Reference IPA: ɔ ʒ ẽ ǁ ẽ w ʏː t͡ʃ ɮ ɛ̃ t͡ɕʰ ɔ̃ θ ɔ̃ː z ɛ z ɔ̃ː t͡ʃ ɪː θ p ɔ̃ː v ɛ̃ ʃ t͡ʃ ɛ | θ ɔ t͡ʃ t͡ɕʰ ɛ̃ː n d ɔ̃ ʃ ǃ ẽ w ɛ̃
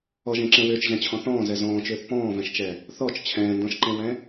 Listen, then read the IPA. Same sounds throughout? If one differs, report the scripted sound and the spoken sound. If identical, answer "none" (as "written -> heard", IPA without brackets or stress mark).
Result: ɪː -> ʏː